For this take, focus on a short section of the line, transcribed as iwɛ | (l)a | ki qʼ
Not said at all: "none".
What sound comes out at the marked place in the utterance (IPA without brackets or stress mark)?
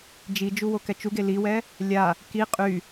lʲ